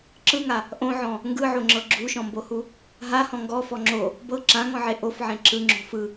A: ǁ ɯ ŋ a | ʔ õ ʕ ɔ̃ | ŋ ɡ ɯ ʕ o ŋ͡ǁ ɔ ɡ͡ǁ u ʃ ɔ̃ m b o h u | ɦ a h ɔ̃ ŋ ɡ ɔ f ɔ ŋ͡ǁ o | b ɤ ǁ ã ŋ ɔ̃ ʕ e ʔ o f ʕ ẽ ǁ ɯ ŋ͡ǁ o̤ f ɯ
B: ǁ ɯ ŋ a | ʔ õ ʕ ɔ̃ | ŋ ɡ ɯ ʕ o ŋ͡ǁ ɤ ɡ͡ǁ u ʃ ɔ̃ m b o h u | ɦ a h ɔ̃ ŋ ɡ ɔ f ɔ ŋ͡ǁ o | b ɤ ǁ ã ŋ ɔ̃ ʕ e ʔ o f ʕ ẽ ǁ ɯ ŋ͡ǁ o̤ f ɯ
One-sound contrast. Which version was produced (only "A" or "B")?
B